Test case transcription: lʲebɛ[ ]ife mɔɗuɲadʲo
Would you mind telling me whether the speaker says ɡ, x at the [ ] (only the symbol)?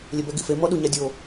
ɡ